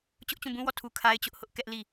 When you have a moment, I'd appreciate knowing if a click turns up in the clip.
no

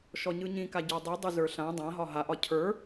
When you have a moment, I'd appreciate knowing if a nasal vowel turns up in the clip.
yes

